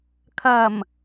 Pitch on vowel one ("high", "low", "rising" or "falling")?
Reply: low